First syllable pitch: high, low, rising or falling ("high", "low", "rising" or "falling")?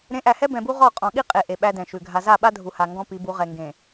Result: rising